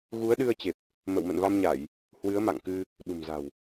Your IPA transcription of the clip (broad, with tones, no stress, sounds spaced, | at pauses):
ɣ u˨˦ ə̯ ɗ ɨ˧ ə̯ t͡ɕ e˨˩ p̚ | m ə̰˧˨ w m ə̰˧˨ n v a˧ m ɲ a˧˩˨ j | h w ɨ˨˦ ə̯ m a̰˧˨ ŋ k ɨ˧ | ɗ ṳ˨˩ m z a̤˨˩ w